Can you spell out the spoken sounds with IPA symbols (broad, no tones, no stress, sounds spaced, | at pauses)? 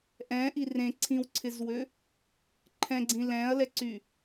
ʔ ɛ̃ ʔ i r ẽ ǀʰ ĩ w ǀʰ ɪ z w ø | ǃʰ ɛ̃ ɡ͡ǀ ĩ l ɛ̃ ɐ̯ l ɛ ǀ y